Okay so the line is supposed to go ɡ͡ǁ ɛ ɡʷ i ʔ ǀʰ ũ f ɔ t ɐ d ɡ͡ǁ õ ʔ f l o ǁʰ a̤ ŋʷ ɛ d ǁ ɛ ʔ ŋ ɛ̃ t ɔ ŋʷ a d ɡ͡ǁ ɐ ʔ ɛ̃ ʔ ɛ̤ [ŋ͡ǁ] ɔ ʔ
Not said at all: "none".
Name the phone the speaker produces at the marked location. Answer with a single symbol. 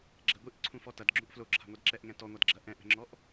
ŋ͡ǁ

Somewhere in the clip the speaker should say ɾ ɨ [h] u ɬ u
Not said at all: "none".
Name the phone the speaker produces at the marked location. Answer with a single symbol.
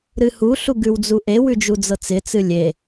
h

